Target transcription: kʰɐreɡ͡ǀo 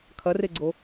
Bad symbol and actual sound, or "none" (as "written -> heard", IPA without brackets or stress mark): none